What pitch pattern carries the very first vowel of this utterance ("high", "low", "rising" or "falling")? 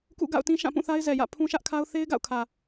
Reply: falling